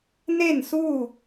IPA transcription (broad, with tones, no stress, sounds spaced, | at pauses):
n e˥˨ n s u˥˨